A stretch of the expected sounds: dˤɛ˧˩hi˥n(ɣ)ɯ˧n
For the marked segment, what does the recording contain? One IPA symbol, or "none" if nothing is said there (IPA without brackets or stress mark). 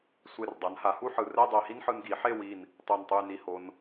ħ